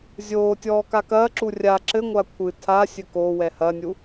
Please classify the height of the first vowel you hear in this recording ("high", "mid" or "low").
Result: mid